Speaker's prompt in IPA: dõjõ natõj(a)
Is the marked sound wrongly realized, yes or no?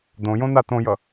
yes